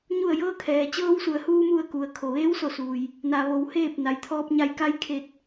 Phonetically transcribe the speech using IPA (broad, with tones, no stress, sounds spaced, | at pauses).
ɲ u˧˩ ə̯ j ɤː˧ kʰ ɛː˩ t͡ɕ ɤː˧ w s u˩ ə̯ h uː˧ m u˧˩ ə̯ k u˩ ə̯ kʰ o˩ ʋ eː˧˥ w s o˧˩ s uː˩ j | n a˩ ʋ o˩˧ w h eː˥˨ p̚ n a˩ j t̪ʰ ɔː˧ p̚ ɲ a˧ j k a˧˥ j kʰ e˧˩ t̚